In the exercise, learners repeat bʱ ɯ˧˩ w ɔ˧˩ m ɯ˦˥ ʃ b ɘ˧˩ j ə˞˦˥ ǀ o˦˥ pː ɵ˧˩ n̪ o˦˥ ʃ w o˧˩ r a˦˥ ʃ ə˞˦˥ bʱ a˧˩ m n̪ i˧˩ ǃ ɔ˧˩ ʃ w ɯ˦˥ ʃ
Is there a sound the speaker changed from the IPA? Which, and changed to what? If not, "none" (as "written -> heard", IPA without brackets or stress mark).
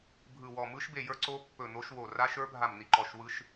ɘ˧˩ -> e˧˩